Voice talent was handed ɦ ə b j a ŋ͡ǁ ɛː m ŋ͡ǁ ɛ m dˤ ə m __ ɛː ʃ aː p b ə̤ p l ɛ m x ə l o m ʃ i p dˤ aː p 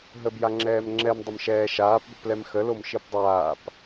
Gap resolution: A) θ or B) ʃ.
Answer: B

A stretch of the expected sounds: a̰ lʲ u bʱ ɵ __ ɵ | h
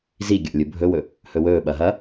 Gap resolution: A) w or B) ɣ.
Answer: A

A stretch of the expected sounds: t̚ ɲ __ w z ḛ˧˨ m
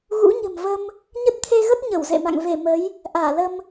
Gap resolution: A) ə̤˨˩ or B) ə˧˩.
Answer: B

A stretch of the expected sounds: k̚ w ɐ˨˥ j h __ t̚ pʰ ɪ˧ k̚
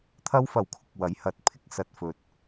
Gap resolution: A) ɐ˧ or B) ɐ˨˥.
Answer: B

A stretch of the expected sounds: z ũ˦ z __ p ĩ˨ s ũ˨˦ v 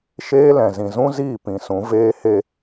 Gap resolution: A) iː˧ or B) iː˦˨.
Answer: B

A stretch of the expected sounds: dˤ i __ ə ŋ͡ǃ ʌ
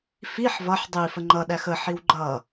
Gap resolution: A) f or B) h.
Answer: A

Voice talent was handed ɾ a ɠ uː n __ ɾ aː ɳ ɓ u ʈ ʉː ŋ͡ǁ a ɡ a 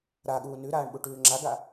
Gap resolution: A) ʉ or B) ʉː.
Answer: A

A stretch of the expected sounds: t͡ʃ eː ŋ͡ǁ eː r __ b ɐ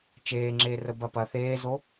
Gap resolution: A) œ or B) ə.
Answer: B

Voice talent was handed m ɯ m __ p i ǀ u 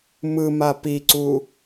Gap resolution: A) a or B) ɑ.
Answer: A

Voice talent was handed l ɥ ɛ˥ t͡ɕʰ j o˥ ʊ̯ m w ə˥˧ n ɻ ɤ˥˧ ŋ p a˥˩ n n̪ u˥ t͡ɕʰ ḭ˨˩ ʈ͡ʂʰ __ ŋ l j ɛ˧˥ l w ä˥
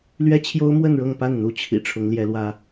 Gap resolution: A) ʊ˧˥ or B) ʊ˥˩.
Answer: A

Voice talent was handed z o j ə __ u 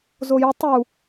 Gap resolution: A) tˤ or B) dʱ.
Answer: A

